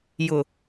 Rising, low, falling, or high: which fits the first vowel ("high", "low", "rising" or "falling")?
low